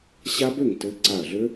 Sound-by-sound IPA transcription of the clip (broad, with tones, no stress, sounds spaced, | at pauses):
ɕ a˦˥ b ø˥˩ ŋ t ɘ˦˥ ǀ a˧˩ ɐ̯ ɮ ø˦˥